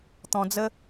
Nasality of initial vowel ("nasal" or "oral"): nasal